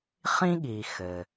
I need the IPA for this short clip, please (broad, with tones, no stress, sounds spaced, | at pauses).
χ ĩ˥ ɠ iː˨ x ɘ˩